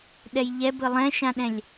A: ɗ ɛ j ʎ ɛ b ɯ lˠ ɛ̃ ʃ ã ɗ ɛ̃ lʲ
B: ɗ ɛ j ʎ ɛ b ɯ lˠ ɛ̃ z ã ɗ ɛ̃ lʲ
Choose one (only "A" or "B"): A